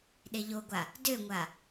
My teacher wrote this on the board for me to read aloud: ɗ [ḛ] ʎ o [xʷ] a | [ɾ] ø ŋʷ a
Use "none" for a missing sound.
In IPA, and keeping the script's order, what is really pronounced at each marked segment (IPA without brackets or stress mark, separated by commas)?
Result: e, ɡʷ, d